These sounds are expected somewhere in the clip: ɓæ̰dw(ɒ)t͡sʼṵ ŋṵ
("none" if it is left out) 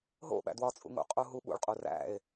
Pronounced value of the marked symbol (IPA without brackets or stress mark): ɒ